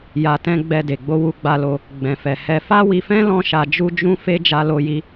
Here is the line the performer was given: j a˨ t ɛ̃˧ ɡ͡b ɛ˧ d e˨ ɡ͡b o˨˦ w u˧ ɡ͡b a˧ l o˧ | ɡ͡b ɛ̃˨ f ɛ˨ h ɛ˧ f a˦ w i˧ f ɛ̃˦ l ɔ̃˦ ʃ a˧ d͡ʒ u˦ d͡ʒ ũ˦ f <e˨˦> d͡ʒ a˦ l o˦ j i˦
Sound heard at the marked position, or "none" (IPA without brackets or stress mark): e˦